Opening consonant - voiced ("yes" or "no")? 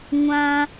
yes